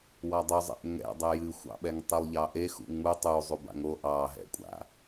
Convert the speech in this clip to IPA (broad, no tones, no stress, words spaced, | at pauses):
wɑdˤuzˤɛ̰ʔ ŋɛ̰ dˤɛjɨxʷɑ̰ɓɛŋ tˤilˠʎɑʔe xṵŋ͡mu tˤu zˤuba̰ŋo ʔɑɦɛ̰kʷʼa̰